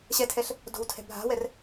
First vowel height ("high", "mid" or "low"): mid